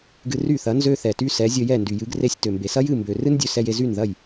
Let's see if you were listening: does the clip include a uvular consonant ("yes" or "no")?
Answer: no